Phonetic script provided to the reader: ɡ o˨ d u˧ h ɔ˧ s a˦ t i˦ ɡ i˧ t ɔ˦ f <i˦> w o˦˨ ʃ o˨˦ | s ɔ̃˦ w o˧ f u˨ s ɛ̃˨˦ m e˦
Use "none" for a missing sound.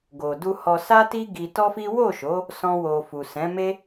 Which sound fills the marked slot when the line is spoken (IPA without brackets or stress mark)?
i˦